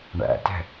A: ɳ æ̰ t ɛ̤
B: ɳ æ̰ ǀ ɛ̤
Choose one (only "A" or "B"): A